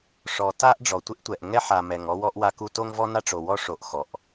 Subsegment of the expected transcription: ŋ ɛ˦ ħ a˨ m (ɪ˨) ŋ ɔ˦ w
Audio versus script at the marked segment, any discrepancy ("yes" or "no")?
yes